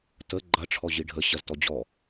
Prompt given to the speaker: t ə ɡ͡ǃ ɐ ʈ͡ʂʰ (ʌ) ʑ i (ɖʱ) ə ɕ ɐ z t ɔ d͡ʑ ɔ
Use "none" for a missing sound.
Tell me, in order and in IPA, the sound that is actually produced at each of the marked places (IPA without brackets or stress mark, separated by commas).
ɔ, ɖʱ